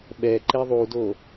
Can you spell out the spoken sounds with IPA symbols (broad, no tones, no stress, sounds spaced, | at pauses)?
ɓ ɛ ǃ e ðˤ u d o